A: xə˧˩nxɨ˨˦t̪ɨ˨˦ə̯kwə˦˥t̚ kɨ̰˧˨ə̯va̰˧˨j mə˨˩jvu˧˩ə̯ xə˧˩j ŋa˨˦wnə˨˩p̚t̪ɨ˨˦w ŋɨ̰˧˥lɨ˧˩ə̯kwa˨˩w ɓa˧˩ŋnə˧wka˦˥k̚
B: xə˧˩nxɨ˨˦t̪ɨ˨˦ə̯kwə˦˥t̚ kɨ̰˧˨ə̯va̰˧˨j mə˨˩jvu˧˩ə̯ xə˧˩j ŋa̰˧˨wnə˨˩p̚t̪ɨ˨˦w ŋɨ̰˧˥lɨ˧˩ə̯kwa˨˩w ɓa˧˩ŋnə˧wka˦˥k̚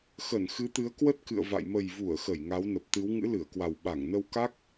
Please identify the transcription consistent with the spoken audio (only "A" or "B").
A